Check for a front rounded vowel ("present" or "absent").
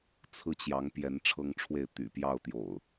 present